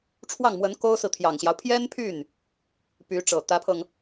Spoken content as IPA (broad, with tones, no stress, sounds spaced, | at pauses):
ʈ͡ʂʰ w ɑ˥˩ ŋ m w ə˧˥ n k o˥ ʊ̯ s ɹ̩˨ t̪ʰ j ɑ˨˩ ŋ ɕ j ɑ˦ ʊ̯ pʰ j ɛ˥ n pʰ y˥˩ n | p y˧˥ ʈ͡ʂ ɤ˨˩ t̪ ä˧˥ pʰ ɤ˧ ŋ